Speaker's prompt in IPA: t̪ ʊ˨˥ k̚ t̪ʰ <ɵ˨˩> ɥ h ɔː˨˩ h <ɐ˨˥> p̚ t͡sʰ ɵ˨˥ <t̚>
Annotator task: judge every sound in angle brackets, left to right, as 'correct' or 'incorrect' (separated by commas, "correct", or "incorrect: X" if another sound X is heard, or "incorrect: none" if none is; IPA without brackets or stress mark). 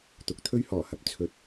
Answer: incorrect: ɵ˥, correct, correct